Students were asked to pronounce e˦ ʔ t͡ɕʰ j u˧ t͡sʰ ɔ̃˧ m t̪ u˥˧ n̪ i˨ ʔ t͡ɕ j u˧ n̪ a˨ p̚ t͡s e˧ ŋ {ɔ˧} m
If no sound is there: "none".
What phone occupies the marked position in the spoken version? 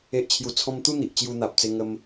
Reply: ə˧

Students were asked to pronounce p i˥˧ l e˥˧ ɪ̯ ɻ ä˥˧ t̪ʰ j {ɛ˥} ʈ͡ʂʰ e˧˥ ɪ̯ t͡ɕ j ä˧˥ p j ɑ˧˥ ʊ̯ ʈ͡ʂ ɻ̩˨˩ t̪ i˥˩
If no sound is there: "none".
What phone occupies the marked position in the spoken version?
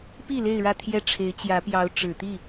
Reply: ɛ˥˩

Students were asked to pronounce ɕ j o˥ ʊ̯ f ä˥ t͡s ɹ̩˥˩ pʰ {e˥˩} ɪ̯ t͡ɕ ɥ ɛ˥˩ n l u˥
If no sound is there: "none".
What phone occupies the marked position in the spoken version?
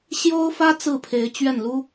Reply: e˧˥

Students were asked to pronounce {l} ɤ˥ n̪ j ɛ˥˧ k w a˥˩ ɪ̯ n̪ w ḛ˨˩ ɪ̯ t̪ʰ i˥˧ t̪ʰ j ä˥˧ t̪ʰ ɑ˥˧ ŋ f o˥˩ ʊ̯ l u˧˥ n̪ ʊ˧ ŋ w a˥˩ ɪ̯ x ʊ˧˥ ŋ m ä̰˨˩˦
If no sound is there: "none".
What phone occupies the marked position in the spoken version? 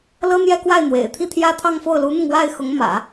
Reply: l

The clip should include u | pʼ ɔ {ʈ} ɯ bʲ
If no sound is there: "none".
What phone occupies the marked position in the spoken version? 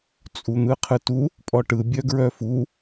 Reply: ʈ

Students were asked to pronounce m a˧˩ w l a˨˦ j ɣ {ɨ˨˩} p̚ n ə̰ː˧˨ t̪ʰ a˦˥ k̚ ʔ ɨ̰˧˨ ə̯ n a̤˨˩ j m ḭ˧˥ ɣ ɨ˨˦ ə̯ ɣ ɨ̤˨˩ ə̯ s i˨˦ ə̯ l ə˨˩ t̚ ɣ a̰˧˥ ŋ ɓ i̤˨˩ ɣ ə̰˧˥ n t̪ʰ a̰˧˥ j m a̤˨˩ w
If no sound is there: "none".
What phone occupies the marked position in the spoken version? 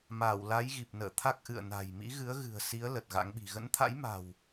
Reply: i˨˩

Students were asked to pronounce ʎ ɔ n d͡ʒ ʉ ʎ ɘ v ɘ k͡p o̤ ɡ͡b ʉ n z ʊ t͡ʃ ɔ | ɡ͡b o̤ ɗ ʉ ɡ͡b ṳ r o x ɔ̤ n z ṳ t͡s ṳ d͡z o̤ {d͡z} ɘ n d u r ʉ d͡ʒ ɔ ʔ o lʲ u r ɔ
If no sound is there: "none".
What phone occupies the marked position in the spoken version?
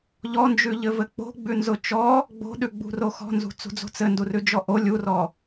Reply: t͡s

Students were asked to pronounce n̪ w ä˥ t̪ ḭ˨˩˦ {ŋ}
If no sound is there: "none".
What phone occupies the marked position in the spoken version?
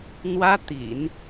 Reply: n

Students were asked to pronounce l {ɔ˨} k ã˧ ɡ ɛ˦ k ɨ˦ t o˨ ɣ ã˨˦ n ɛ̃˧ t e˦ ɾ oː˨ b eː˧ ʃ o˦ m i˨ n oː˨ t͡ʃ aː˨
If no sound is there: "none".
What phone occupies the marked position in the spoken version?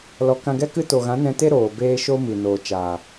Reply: ɔ˨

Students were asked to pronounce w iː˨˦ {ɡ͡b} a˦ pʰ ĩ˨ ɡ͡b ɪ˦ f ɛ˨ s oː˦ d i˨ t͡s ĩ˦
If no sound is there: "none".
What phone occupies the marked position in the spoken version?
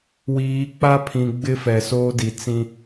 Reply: k͡p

